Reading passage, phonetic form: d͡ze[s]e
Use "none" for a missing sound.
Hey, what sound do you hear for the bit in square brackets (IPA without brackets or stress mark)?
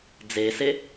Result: s